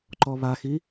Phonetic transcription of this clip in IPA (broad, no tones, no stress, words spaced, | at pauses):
ǃɔβaxi